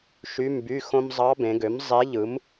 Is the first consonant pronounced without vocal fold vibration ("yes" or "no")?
yes